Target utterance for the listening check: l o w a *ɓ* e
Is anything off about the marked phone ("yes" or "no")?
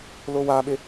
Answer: no